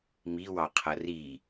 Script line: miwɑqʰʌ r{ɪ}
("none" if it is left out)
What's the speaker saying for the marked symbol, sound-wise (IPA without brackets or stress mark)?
i